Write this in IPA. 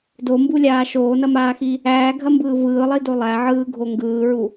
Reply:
d o m b u lʲ aː ʃ oː n ɐ m aː x i | æː ɡʱ ɐ m b ɯː v ɯː lˠ i d o lˠ æ ʕ ɯː ɡʱ o ŋ ɡ ɯː ɹ u

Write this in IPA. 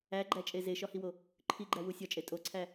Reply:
æ ɡ͡ǃ æ t͡ʃʼ e z e ʃ ɒ h i w o | ǃʰ i ɡ͡ǃ æ w u sʲ ɒ t͡ʃʼ e tʼ o ǀʰ æ

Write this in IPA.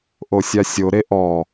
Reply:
ʔ o sʲ a sʲ o ɾ e ʔ ɔ

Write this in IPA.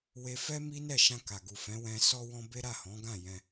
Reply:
w e˧ f ɛ˦ m i˦ n ɛ˦˨ ʃ ã˧ k a˨ ɡ u˨ f ɛ̃˨˦ w ɛ̃˧ s ɔ˧ w ɔ̃˧ b e˦ ɾ a˦˨ h ɔ̃˨˦ ɡ ã˦˨ j ɛ̃˧

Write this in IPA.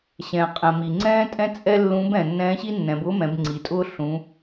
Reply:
ɕ ɛ̃ː˩ qʼ ɛ̃˩ m i˩ ŋ͡ǀ ɛ̃ː˥ tʼ ɛ̃˥ t͡sʼ ɛ˥ lː ũ˧˥ b ɛ̃˩ nː ɛ̃ː˧˥ ɕ i˥ nː ɛ̃˩˧ b ʊː˥ m ɛ̃˩˧ b ŋ͡ǀ i˩˧ tʼ ʊː˥ ɬ ũ˩˧

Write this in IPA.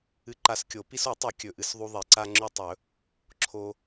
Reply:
ɨ˧ ǃ a˧ s kʲ o˨˩˦ p i˧ s o˨˩˦ tˤ ʉ˨˩˦ kʲ ɵ˩ ʔ ɨ˩ s ðˤ u˧ ðˤ i˩ ǀ a˧ ŋ͡ǁ ʉ˧ tˤ ɵ˨˩˦ | ǁʰ o˧

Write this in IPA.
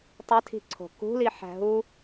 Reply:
tˤ e tʰ i̤ ǀʰ o̤ k ṳ l i ħ æ̤ ɦ u

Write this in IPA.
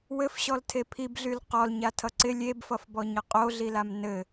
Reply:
w ɘ f ɕ ɔ l tʰ e pʰ i b ɮ y l q ɔ l ɲ a tʰ ʌ ǀ ɪ lʲ e b f ʌ f b ɔ ɲ ʌ qʼ o ɮ i l a m n ɘ

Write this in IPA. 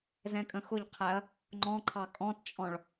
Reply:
z ɛ̃ kʼ ə̃ x ʊ ʎ qʰ æ ɐ̯ | ŋ͡ǃ ɔ̃ ǃʰ ɑ kʼ ɔ̃ t t͡ʃʼ ɔ̃ ɭ

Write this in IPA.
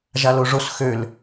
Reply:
ʒ a l o ʐ o s x ø l

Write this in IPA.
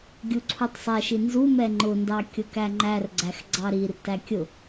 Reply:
ɡʲ u ǀʰ u tˤ sˤ ɛ ʃ i n z u m ɛ ŋ͡ǃ ʊ n d ɑ kʲ ʊ k æ ŋ͡ǃ æ r ɡ͡ǀ æ x ɡ͡ǀ ɑ ɾ i r t æ kʲ ʊ

